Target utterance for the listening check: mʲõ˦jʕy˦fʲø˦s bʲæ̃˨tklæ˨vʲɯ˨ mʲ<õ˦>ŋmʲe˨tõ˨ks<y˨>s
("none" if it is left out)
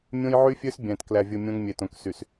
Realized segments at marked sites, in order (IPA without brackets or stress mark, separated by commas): õ˦, y˨